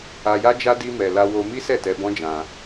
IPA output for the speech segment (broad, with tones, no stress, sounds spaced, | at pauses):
a˧ j a˦ d͡ʒ a˦ d i˦ m ɛ˧ l a˧ w o˧ m i˦ s ɛ˦˨ t ɛ˧ b ɔ̃˦ d͡ʒ ã˧